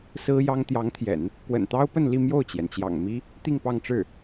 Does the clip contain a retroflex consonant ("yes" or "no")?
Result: yes